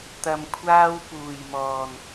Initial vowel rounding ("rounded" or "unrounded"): unrounded